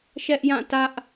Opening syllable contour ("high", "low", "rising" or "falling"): high